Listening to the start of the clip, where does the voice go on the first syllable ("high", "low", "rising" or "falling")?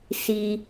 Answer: low